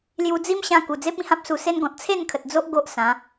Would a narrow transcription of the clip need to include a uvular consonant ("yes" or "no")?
no